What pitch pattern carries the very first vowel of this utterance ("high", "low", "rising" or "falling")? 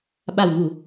low